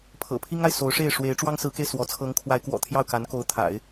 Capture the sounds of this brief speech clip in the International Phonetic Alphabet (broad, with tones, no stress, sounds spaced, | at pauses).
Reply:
pʰ ɤ̰˨˩ pʰ i˥ ŋ a˨ ɪ̯ s o˧˥ ʊ̯ ʂ e˥˩ ɪ̯ ʂ w e˧˥ ɪ̯ ʈ͡ʂ w ɑ˥ ŋ s ɹ̩˧˥ k e˧ ɪ̯ s w ɔ˧˥ t͡sʰ ɤ˧˥ ŋ kʰ w a˧˥ ɪ̯ k w ɔ̰˨˩ t̪ʰ j ɑ˥˩ ʊ̯ k a˧˥ n k o˧˥ ʊ̯ t̪ʰ a̰˨˩˦ ɪ̯